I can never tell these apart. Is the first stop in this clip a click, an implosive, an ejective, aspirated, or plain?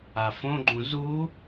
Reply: click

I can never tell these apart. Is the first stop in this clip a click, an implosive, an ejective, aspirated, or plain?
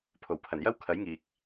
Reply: aspirated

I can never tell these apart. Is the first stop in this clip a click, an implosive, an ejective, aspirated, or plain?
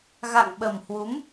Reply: implosive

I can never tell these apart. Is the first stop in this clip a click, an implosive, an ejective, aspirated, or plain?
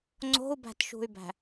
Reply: click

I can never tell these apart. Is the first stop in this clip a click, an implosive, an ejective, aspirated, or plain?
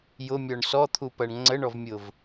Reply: aspirated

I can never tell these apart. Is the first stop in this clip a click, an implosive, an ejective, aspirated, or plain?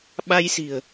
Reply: implosive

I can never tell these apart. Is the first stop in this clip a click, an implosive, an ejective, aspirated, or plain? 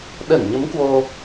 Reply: implosive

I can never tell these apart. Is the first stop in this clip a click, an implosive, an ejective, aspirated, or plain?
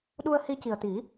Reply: implosive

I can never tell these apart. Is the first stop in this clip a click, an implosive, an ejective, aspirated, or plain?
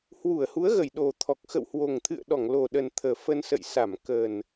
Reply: implosive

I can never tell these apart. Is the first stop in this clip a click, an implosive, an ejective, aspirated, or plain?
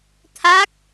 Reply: aspirated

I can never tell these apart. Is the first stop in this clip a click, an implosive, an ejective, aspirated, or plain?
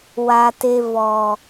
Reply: plain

